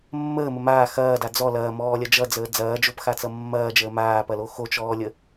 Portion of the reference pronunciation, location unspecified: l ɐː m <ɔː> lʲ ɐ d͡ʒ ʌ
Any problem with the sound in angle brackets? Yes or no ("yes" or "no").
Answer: no